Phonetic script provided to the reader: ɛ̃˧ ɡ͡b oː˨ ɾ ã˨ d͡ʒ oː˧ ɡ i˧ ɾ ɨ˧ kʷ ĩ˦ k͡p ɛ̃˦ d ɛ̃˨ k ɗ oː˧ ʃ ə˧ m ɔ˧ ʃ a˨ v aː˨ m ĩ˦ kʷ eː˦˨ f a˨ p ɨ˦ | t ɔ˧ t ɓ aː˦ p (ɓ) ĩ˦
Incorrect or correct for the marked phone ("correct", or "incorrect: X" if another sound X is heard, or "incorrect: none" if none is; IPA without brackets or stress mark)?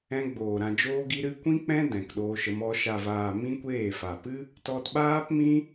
incorrect: m